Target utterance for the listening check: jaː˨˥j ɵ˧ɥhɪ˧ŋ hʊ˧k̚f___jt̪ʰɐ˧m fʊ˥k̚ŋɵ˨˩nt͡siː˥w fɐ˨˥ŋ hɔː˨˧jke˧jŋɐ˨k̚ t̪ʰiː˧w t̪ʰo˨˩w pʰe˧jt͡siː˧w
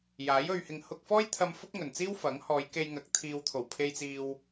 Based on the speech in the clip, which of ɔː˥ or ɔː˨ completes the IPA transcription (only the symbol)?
ɔː˥